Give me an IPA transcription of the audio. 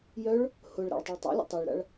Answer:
j œ ɭ | h ʊ ɭ ɾ a̰ ɭ tˤ ɪ ɭ tˤ a̰ lʲ ə̰ tˤ e ɭ ɾ a̰ ɭ

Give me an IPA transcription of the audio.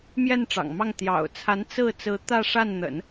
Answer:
m j ɛ˥˩ n ʈ͡ʂ ɑ̰˨˩ ŋ m ɑ˥˩ ŋ t̪ j ɑ̰˨˩ ʊ̯ t͡sʰ a˧˥ n t͡s ɹ̩˥˩ t͡s ɹ̩˧˥ t̪ ä˥˧ ʂ a˥˩ n n̪ ə̰˨˩˦ n

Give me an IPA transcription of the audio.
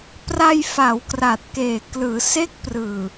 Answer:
p r a˧ j f a˩˦ w k r aː˨˩ t̚ k eː˨˩ k l ɯː˩˦ s e˦˥ k̚ p r ɯː˨˩

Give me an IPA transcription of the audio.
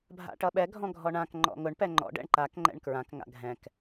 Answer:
bʱ a̰ ʈ ʌ ɓ ɛ ɡʱ ɔ̃ ɡʱ ɔ ɳ ã k ŋ͡ǃ ɔ̰ ŋ ʊ ɳ p ɛ ŋ͡ǃ ɔ̰ ɖ ɛ̰ ɳ ǃ a k ŋ͡ǃ ɛ̰ ɳ k ɹ ã k ŋ a̰ ɡʱ ɛ̃ k

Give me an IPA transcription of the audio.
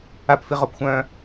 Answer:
a p f i ʁ o p xʷ œ̃ː

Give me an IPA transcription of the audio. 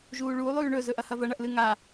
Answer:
ʒ uː ɭ uː lˠ ʉː ɳ ɵ z ɵ ʔ ɐ h ɐ v ɐ ɳ ɐ ʔ l ɨ ŋ a

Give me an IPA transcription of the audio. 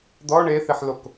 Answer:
d̪ ɔ ɳ e θ i ħ l o k

